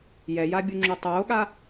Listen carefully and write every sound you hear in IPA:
j ɛ j a bʲ u ŋ͡ǁ u tˤ oː ɠ a

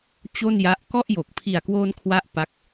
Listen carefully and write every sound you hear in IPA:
t͡ɕ o˥˩ n j a˦˥ ʔ k ɔ˥˩ ʔ j o˨˩ k̚ pʰ i˨˩ a̯ k w oː˧ n kʰ w a˦˥ ʔ p a˦˥ k̚

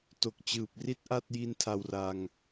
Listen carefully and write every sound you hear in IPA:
t o˨˩ k̚ t͡ɕ ɯː˨˩ p̚ r i˥˩ t̚ ʔ a˥˩ t̚ j i˦˥ n tʰ a˧ w r a˧ ŋ

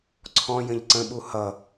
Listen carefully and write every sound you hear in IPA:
ǀʰ ɔ̃ j ə̃ ʎ ǀ ə̃ ɓ u h ʌ

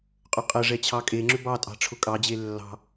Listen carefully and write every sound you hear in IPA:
qʼ ʏ qʼ ə ʐ ɛ t͡ɕʰ ɑ kʼ e ŋ͡ǁ ʏ b ɑ tʼ ɑ̤ ʈ͡ʂʰ ʊ kʼ ɑ d͡ʑ e lː ɑ̤

